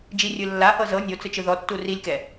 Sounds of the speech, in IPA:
d͡ʒirʲɯ lːahɤ zɤ nʲot͡sɯt͡ʃɯ ðɔtːu rilʲkɛ

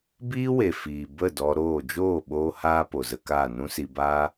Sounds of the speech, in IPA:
biː˦we˨ fiː˨bə˦˨ dɔ˧ɾoː˦˨ d͡ʒoː˦˨ ɓoː˦haː˦ po˨zə˧kaː˦˨ nũ˦si˧baː˦

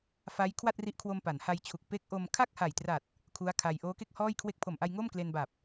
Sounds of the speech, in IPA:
fa˦˥j kʰwa˥˩t̚ri˦˥ʔkʰwo˧m pa˩˦nha˧jt͡ɕʰu˨˩k̚ pe˦˥k̚ʔo˧m kʰa˥˩k̚ha˨˩jtra˨˩t̚ | kʰu˦˥a̯kʰa˧j ʔoː˦˥ke˥˩k̚hɔː˥˩j kʰwe˦˥k̚pʰo˨˩mʔa˧j ŋo˥˩m kle˧nba˨˩p̚

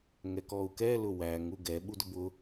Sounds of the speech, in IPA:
ŋɛkɔu̯kɛ lʊwæŋ uɡɛ ɓudʊbʊ

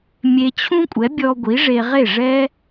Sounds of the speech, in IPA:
mʲe˧t͡ɕʰũ˥kʷʼɛ˩˥ bʲɔ˧ ɡʷi˩˥ʐe˧ ʁe˥˩ʐɛ˥

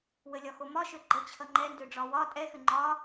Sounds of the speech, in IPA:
wəlʲɒxomɒ ʃøɡ͡ǃət͡ɕʰʌ ŋ͡ǃɛndøɖ͡ʐɒ wɒ tʼɛxʏ ŋ͡ǃɒ

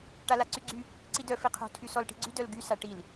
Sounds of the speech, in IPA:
ʈalaǀyɡ͡ǀy | ǀidœ fiqʰo̤ tʰysɔlʈi̤ɡ͡ǀy dœlɡy saʈil

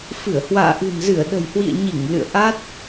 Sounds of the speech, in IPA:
fɨ˧˩ə̯hwa̰ː˧˨ ʔɨ̤˨˩nzɨ˧˩ə̯ɗə̤˨˩jhwḭ˧˨ə̯ ɲi˧˩ŋ lɨ̰˧˨ə̯ʔa˦˥t̚

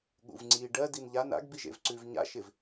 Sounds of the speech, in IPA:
ɠṵvŋ͡ǀi ɖɜ dinʎan a̰ɡ biʒḛvǀʉv ɲa̰ ʃɪv

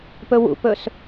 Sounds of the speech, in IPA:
pɵwṵpɵs

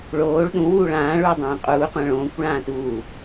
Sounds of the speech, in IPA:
ɭoːɭ ɗũ wuːɭãː ɭuːdˤõːqʼuː qʷãɭõːkʷ ɭãːtuː

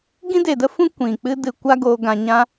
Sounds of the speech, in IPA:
ɡĩ˦de˨də˦fũ˦ kʷĩ˨k͡pɨ˦ dɨ˧ kʷa˦ɡoː˧ ɡã˧ ɲã˦

